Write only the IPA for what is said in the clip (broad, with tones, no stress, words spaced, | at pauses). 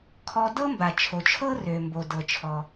kʰɔ˧ dɤ˥mba˩t͡ʃʰo˩t͡ʃʰɤ˥ rø˩mbo˩ dɤ˩t͡ʃʰɔ˩